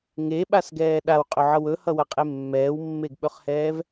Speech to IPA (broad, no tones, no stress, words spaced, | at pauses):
ŋeɓasɡɛː ɗawqʼɵʕʌw ɵhʌwɐqʼe mːɛːwmːeɡɓɵχhɛːv